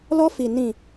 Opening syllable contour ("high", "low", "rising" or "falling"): high